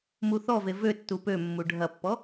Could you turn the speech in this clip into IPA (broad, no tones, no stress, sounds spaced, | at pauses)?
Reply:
m u θ ɔ v e v ø tː u p ø mː u ɖʱ ɐ pː ɔ